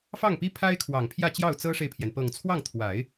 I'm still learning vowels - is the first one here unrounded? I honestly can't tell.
yes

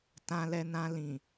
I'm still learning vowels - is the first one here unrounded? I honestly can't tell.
yes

